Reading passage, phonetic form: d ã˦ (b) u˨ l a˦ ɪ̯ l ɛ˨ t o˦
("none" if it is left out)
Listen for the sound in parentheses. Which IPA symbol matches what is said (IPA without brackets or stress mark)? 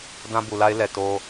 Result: b